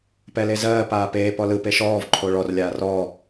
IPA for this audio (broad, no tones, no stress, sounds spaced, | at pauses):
p ɛ l e z ɜː p aː p eː p ɔ l ɯ p e ʃ ɔː v ǃʰ o ɭ ɔ r lʲ aː r ɔː